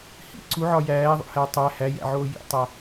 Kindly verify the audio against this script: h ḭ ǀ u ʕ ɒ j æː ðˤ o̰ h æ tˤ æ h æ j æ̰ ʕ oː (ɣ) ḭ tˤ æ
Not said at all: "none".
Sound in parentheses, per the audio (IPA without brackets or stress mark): j